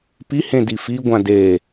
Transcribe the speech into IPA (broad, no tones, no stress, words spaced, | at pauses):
pi hẽdifi ɡʷãde